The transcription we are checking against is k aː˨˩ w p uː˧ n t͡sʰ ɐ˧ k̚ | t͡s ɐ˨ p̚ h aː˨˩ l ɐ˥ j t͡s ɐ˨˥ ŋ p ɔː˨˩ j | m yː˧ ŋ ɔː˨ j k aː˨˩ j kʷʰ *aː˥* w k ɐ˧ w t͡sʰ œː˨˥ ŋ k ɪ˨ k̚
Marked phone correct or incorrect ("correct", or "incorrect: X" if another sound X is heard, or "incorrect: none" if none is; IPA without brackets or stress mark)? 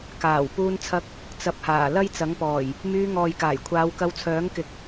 incorrect: aː˨˧